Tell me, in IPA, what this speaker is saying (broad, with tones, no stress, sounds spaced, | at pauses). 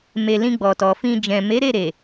m e˨ l ĩ˧ ɡ͡b ɔ˨ t ɔ˨ f ĩ˧ d͡ʒ ɛ̃˨ m e˨˦ ɾ e˦˨ ɾ e˨